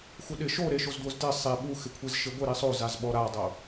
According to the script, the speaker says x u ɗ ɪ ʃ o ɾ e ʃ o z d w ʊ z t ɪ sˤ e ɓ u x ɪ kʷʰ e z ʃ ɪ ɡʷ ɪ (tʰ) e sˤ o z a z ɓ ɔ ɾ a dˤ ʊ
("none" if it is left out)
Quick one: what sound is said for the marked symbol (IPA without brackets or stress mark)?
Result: ɾ